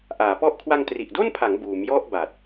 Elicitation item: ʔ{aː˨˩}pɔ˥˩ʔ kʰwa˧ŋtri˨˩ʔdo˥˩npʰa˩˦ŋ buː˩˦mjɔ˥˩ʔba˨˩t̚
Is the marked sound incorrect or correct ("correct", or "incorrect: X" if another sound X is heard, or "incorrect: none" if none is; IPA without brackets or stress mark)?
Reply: incorrect: aː˩˦